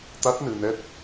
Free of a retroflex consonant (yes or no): yes